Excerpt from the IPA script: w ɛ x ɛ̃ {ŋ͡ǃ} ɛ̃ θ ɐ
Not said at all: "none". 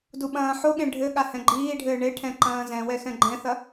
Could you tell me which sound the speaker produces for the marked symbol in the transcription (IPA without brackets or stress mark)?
ɡ͡ǃ